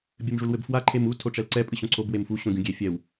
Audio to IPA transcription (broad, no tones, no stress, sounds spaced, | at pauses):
bʲ ɘ m ʐ u l w ɘ b f w a ǃʰ e m u tʰ o ʈ͡ʂ ɛ l ǀ ɛ pʼ ɨ ɕ õ ǀʰ o b w e m f u ɕ õ ɡʲ ũ ɡʲ e fʲ ɛ w